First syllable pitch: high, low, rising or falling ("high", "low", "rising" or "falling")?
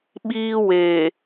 high